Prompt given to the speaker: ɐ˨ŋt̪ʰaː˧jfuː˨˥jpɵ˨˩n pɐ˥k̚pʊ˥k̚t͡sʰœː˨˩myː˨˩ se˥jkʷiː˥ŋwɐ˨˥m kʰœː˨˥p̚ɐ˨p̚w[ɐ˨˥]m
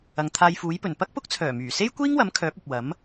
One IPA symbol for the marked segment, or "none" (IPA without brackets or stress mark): ɐ˨˥